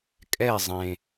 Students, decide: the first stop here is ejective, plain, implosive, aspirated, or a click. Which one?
ejective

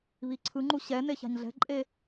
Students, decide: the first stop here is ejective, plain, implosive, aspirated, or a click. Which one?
click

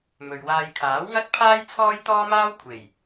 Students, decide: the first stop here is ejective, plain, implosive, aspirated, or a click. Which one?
aspirated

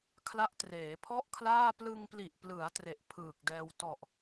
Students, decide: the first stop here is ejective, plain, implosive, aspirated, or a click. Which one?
aspirated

